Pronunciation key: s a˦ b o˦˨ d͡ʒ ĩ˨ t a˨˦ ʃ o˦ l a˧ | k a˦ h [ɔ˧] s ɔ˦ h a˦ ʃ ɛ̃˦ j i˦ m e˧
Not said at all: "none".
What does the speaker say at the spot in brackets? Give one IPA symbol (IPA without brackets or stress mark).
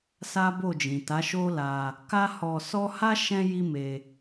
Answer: ɔ˧